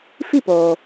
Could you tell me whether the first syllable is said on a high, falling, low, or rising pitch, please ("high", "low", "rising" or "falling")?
falling